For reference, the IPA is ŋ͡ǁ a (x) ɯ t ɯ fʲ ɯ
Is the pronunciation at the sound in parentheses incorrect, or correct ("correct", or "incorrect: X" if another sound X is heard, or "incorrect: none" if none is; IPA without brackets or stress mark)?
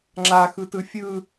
correct